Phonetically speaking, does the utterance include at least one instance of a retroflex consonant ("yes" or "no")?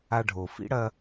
yes